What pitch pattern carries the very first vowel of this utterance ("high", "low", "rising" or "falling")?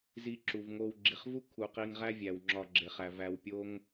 low